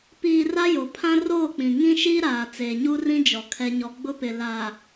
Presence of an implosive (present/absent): absent